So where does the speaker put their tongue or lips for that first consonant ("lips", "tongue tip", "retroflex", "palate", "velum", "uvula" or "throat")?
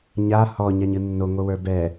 palate